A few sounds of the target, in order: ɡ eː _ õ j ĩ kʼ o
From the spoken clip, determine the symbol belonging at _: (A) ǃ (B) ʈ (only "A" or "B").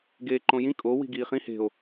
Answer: A